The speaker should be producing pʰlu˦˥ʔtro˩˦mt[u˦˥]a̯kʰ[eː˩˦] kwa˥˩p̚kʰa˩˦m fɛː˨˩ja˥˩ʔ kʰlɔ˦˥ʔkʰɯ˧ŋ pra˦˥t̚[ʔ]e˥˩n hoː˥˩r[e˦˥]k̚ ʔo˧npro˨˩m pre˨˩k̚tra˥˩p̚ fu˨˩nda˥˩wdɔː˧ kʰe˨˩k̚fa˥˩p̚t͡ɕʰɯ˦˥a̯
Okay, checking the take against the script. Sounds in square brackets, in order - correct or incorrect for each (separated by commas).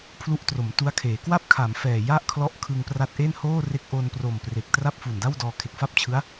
correct, correct, correct, correct